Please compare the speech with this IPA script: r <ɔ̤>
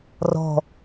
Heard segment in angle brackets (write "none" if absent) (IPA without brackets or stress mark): ɔ̤